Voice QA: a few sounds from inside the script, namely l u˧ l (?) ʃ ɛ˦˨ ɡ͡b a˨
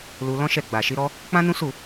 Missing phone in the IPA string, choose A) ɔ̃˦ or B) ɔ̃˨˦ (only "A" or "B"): A